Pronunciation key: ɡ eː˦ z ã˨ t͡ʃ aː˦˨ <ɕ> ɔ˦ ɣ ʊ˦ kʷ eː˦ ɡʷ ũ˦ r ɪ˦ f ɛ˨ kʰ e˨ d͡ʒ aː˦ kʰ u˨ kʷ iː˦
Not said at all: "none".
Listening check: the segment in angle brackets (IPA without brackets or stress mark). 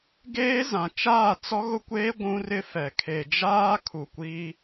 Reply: t͡s